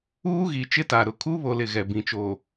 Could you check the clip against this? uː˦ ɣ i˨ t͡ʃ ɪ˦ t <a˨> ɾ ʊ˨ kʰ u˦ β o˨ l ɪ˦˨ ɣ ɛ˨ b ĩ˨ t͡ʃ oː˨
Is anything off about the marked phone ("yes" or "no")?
no